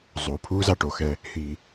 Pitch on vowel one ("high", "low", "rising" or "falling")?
low